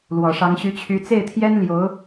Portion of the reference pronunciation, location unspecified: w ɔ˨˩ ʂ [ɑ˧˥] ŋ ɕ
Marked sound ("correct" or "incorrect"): correct